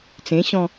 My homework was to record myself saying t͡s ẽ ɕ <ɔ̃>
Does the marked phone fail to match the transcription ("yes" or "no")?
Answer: no